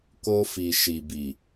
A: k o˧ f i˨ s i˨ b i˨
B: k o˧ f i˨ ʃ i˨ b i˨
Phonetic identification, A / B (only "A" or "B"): B